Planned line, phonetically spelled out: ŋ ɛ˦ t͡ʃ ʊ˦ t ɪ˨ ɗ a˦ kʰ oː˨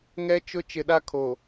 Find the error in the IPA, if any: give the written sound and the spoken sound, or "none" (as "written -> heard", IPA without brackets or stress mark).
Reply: t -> t͡ʃ